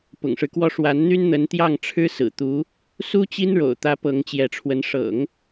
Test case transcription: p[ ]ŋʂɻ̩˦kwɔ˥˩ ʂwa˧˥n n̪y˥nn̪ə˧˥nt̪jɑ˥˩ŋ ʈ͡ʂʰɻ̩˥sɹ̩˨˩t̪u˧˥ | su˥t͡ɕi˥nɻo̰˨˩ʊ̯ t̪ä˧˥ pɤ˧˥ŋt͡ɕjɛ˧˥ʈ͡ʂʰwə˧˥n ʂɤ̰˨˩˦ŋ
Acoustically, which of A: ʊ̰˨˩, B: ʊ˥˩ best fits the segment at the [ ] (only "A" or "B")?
A